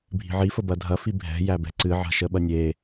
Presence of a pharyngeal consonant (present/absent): present